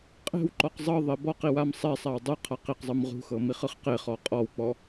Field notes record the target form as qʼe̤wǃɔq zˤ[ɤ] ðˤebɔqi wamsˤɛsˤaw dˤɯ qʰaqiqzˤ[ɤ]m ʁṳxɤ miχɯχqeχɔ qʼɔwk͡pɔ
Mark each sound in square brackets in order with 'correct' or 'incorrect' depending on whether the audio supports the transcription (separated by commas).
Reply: correct, incorrect